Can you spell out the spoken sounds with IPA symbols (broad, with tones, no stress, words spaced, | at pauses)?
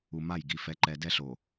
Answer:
u˨ ma˦˨jɡi˨ fɛ˨˦ǃɛ˨dɛ˦ ɬo˨